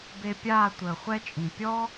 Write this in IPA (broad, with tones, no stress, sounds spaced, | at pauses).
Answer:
b e˧ pʲ aː˦˨ tʷ əː˨ χʷ ɛ˦ t͡ʃʼ ĩ˨ pʲ ɔ˦